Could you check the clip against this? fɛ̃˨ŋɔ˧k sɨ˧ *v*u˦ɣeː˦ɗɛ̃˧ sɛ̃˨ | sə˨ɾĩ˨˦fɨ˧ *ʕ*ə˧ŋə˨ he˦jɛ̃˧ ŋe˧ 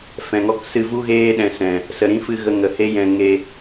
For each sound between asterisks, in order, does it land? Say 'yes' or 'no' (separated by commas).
yes, no